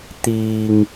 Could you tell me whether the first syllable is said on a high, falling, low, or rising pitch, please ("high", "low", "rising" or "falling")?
low